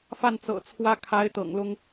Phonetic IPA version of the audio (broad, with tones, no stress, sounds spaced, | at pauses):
f a˥˩ n t͡s ɤ̰˨˩ t͡sʰ w ä˥ kʰ a˧˥ ɪ̯ t̪ ɤ̰˨˩ ŋ l ʊ˥ ŋ